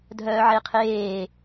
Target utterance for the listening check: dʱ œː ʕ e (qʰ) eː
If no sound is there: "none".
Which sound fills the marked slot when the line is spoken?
qʰ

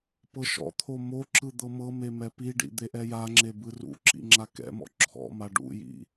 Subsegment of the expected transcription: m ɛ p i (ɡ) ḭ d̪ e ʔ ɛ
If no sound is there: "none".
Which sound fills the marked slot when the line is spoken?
ɖ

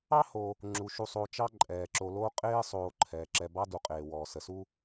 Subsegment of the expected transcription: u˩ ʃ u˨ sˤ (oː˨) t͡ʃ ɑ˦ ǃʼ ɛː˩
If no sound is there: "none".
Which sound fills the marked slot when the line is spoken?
oː˨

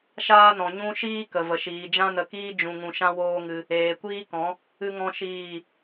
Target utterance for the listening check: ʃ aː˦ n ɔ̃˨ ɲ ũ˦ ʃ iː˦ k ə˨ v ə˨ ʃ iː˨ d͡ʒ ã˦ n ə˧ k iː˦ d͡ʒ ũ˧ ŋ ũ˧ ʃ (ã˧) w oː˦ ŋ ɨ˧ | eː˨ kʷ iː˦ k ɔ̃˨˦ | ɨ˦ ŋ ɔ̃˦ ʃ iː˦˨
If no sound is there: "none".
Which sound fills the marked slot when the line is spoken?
ã˦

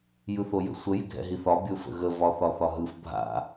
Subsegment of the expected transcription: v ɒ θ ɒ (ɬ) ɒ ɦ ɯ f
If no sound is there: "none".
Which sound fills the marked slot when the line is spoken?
θ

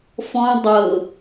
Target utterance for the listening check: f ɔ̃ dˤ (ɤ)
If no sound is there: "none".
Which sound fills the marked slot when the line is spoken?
ɤ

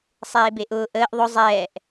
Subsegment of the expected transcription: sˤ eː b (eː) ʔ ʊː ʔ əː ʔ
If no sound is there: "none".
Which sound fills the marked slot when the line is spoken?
e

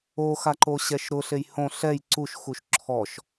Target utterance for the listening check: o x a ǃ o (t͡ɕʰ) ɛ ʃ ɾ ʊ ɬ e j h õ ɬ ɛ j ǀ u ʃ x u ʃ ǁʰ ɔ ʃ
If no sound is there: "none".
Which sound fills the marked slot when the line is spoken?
ɕ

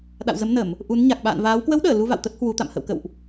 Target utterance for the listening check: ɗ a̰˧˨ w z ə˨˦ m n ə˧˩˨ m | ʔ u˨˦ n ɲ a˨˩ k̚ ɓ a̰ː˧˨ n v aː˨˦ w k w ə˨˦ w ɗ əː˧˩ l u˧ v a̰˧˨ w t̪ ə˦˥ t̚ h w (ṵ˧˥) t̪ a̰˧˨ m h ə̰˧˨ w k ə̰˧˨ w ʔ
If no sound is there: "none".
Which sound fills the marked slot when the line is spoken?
u˨˦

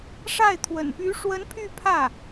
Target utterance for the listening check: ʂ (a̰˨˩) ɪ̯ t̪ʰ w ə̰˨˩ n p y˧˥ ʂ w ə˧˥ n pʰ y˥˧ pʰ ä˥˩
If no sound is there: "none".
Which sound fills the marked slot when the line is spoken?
a˥˩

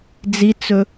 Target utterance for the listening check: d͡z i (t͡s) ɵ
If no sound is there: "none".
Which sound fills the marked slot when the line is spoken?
t͡s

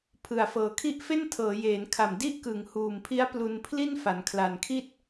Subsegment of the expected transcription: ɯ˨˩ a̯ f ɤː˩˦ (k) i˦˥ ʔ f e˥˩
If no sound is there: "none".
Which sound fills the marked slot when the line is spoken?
kʰ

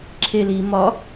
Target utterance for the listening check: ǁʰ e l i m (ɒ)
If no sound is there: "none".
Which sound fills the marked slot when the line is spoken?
ɒ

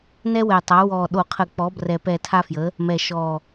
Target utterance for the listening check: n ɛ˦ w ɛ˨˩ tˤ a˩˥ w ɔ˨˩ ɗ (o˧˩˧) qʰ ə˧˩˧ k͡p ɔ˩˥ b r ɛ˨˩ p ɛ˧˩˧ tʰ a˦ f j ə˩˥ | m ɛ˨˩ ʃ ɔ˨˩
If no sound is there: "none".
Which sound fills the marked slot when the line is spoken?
o˧˩˧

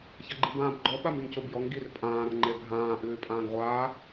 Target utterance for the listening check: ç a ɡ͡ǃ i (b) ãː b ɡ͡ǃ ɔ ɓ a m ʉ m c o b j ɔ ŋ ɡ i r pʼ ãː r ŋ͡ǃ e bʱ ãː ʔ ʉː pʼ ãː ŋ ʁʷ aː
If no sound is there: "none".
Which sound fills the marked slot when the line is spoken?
b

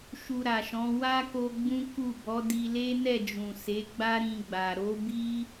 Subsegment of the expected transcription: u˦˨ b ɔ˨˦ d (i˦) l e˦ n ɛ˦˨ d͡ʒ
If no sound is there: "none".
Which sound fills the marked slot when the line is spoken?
i˧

